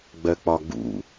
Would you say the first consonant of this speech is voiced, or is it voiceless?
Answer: voiced